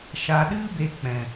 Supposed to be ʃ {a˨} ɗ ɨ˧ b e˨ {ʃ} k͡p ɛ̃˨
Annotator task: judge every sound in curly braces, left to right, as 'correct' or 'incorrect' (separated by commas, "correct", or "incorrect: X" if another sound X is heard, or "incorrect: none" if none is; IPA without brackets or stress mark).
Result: correct, incorrect: none